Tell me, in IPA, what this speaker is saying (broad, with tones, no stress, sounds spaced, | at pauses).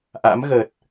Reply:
ʔ a̰˧˥ m ɣ ə˨˩ t̚